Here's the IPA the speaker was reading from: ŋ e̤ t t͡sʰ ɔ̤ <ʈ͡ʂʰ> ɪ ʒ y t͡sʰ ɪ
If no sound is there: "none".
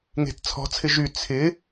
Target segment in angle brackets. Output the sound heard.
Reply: t͡sʰ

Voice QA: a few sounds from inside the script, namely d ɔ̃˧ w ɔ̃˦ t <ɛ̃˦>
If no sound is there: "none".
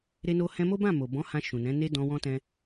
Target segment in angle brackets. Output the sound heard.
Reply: ɛ̃˦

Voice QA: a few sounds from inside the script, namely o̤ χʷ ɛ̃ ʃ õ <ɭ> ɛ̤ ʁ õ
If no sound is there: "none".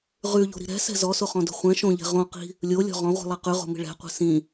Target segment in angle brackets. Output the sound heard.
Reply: ʎ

